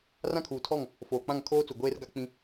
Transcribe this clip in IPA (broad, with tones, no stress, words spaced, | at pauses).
rã˦kʰuː˨tʰɔ˦˨ŋ | foː˨k͡pã˦˨ŋ kʰoː˦t͡su˨ ɡʷeː˦r ɡa˦k͡pĩ˦